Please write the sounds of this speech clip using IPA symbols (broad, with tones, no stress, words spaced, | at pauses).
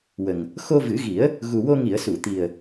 wə˨˩ŋ | xo˧vɨ˨˩˦ɣi˨˩˦ə̯ | ɣu˨˩wo˧ŋi˨˩˨ə̯su˨˩˨ t̪i˨˩ə̯